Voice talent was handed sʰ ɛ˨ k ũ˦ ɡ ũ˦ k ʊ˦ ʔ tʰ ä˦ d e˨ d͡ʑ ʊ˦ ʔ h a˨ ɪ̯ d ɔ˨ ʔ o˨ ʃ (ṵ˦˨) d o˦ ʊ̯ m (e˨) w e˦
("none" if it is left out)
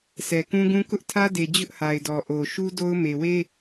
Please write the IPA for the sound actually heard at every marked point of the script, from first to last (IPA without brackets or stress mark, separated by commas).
u˦, e˨